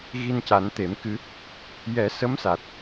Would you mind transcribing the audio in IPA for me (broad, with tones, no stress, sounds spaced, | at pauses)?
ɣ i˧ n c a˨˩˦ n t̪ e˨˩˦ m k ɨ˧˥ | j ɛ˨˩˦ s ə˧˥ m s a˨˩ t̚